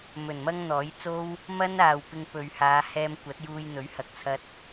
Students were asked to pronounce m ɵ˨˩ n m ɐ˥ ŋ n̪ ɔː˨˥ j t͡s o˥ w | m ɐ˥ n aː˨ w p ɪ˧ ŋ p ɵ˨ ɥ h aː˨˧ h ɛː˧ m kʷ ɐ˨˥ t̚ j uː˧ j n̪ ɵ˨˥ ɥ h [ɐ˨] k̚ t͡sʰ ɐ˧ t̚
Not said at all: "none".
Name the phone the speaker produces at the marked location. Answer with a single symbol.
ɐ˨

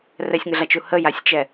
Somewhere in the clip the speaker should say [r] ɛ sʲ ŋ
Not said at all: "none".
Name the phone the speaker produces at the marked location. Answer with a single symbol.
r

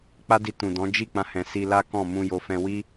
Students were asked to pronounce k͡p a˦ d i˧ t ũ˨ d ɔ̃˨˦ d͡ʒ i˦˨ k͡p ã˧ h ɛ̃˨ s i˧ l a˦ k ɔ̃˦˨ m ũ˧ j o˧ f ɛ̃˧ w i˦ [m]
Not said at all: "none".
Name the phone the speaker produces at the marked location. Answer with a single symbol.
none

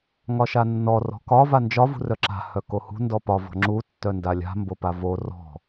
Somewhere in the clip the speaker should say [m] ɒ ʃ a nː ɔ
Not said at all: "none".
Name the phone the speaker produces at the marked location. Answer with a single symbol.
ŋ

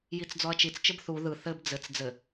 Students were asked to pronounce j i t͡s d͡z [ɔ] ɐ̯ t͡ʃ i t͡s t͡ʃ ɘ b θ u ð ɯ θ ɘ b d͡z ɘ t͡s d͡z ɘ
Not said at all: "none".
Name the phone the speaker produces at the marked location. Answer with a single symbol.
ɔ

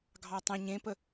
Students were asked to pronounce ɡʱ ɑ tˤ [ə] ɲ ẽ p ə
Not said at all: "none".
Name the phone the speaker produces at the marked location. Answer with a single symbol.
ə̃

